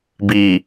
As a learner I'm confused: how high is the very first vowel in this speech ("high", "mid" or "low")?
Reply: high